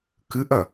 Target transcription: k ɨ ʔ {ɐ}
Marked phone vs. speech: correct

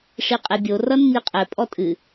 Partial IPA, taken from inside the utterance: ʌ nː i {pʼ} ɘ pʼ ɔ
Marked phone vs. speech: incorrect: qʼ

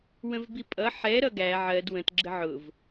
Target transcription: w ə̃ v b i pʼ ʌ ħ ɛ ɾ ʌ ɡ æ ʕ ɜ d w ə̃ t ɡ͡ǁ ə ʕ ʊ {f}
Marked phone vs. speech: incorrect: v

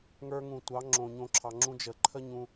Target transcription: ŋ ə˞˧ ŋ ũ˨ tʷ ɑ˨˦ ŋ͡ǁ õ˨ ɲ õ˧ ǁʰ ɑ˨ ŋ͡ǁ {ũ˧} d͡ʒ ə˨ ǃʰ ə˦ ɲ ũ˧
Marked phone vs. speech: correct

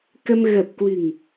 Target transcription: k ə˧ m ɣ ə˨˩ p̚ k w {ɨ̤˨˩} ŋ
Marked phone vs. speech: correct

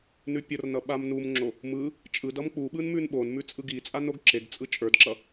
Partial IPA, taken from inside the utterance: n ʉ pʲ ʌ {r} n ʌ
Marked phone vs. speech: correct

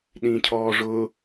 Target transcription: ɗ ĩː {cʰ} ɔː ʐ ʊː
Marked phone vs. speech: correct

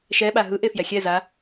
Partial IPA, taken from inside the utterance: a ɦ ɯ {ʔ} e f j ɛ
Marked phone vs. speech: correct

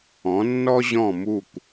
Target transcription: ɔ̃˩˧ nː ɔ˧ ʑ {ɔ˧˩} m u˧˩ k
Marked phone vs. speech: incorrect: ɔ̃˧˩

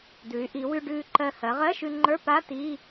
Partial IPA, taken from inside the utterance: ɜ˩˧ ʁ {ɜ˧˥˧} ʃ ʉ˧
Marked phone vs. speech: correct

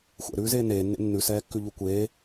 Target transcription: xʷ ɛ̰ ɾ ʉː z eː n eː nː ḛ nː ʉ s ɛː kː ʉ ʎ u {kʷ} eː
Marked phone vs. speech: correct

